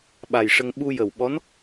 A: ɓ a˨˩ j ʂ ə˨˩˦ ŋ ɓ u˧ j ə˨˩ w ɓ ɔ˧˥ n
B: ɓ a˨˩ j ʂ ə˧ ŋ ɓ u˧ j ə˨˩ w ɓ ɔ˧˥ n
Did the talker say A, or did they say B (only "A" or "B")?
B